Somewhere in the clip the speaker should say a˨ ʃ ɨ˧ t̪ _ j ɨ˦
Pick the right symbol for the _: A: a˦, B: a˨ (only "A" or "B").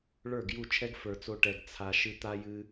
A